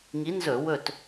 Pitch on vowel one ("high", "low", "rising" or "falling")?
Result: rising